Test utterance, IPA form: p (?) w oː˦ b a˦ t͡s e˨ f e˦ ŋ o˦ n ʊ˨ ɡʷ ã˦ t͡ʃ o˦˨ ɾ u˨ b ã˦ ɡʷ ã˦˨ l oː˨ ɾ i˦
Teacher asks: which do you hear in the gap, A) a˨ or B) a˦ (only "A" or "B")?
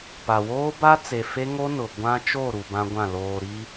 A